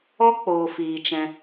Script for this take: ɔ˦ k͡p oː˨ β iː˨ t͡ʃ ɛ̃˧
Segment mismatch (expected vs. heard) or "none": β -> f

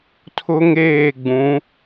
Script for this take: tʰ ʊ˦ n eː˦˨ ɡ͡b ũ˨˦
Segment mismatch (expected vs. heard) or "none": n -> ŋ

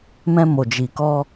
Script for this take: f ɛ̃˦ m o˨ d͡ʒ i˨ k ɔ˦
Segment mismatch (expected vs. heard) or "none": f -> m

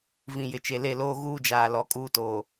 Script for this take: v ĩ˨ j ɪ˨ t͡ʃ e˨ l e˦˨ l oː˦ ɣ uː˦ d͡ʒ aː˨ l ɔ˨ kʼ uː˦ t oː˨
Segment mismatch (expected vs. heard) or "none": none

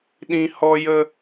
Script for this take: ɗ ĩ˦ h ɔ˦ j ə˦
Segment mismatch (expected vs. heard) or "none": none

